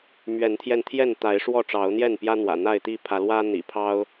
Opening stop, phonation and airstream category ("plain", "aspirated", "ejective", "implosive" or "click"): aspirated